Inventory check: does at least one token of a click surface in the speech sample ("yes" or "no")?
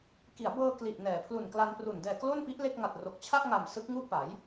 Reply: no